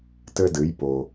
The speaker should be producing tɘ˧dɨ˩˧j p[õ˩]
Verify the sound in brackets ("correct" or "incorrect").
incorrect